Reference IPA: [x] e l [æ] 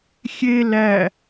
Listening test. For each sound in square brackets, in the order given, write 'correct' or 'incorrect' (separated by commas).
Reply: incorrect, correct